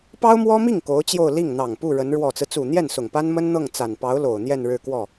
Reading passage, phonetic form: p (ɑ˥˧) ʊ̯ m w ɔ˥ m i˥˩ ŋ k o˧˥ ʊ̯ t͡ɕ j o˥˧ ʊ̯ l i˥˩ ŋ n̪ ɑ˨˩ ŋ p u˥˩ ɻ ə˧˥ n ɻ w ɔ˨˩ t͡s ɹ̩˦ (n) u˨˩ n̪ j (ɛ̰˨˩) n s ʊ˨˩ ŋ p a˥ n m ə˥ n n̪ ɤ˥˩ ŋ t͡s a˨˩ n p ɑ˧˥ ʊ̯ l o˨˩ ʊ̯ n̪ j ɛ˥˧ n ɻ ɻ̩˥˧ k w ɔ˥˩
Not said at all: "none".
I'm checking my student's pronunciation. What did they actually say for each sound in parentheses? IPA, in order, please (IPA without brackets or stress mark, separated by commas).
ɑ˥, t͡s, ɛ˥˩